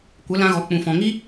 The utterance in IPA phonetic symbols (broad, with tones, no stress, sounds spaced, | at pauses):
kʷ ə˨˦ l ã˧ ɣ ɔ˨ k͡p ũ˨ f ɔ̃˨ ŋ i˦